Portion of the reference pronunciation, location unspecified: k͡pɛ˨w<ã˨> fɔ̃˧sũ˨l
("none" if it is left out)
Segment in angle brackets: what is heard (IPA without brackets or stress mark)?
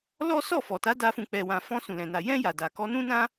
ã˨